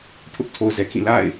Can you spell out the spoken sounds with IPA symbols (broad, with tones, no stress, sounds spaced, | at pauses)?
pʰ ʊ˦ ʔ tʰ o˨ ʊ̯ z ɛ˨ kʰ ĩ˦˨ l a̰˦˨ ɪ̯